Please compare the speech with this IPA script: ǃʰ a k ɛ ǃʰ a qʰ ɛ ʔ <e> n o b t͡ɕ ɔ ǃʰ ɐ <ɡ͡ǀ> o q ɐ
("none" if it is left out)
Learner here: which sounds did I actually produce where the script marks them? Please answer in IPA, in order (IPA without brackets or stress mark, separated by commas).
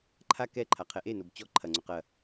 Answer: e, ŋ͡ǀ